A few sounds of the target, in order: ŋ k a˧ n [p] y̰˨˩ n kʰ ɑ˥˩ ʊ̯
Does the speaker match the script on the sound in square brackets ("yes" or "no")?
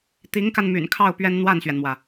no